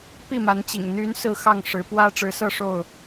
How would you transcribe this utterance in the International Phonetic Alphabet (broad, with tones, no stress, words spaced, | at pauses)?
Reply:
pi˥˨ma˨˦nt͡ɕḭ˨˩ŋ n̪y˨˦n sɹ̩˥˨xɑ˥˨ŋ ʂɻ̩˨˦ pwä˦ʈ͡ʂɻ̩˨˦sɤ˥˨ ʂo˥˨ʊ̯